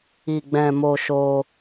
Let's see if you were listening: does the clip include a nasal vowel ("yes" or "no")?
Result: yes